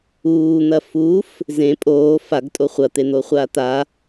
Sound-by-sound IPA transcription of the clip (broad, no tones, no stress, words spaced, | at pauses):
uːn̪ɐ fuf | zẽ pʼoː faɡtʼo χʷɐt̪en̪oːχʷaː t̪a